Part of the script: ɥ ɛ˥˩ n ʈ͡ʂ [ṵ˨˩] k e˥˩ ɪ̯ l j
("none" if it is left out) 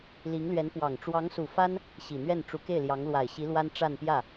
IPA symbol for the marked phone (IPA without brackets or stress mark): u˧˥